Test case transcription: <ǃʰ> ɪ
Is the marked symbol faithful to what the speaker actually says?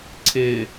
no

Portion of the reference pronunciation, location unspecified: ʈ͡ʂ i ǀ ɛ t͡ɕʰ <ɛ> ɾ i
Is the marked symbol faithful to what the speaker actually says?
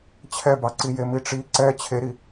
no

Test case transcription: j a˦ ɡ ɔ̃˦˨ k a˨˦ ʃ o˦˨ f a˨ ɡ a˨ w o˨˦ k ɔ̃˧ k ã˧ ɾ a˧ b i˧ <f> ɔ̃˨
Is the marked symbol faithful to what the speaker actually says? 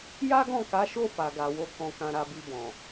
no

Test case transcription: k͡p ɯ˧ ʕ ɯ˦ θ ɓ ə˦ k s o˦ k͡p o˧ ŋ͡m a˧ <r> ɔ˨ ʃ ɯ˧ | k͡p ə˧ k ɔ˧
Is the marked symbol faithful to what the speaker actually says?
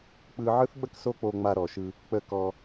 no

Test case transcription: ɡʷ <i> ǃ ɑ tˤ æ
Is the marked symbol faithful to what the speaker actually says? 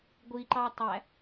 yes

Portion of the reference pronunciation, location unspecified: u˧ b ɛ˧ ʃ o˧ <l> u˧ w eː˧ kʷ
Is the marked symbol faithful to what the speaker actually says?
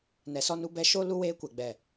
yes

